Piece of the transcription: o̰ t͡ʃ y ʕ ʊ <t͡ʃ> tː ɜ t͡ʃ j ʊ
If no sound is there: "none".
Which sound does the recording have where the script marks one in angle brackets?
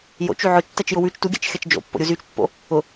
t͡ʃ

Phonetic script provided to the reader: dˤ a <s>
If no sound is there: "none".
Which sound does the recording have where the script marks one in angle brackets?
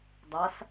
s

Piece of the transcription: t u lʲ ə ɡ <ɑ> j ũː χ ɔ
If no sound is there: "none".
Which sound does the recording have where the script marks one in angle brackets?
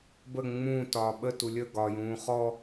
ɒ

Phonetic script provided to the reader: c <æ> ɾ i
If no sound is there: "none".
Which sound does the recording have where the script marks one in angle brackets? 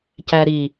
æ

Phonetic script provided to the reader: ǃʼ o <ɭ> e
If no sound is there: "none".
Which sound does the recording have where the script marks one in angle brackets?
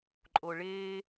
ɭ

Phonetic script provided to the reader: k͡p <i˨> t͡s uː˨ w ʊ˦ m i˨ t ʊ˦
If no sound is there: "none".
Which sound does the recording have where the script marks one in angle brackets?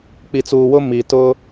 i˨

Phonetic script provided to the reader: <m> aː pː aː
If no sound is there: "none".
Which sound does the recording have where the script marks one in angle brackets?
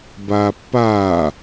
b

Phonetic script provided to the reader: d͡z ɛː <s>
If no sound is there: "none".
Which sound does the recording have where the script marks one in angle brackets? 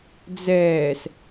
s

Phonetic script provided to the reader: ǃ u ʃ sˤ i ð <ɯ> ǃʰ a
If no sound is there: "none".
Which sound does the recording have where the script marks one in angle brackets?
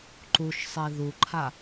u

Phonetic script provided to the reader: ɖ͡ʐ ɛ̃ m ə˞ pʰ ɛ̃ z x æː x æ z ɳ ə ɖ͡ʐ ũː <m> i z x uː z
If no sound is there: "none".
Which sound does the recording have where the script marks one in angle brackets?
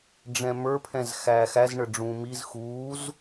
m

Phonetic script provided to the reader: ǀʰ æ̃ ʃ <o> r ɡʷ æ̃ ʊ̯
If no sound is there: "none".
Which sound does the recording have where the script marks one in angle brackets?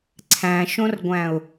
õ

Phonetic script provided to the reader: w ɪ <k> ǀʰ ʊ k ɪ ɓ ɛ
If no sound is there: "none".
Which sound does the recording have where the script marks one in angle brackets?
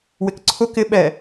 k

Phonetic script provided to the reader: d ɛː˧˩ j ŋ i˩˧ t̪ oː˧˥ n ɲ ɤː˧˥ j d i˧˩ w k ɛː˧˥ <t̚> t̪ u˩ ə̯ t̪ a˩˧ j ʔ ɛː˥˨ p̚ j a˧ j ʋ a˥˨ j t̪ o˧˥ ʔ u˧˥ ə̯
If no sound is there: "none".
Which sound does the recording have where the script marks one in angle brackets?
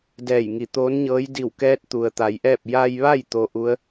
t̚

